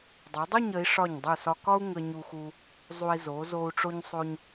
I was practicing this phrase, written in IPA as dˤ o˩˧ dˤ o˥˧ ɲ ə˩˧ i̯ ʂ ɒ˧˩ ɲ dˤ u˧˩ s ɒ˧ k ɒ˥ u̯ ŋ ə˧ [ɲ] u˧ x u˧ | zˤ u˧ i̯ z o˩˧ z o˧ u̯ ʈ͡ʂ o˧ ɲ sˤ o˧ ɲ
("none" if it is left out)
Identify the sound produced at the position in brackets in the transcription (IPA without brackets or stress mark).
ɲ